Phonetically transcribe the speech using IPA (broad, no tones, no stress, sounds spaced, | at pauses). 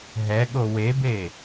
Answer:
ɦ ɛ ɠ o w e b e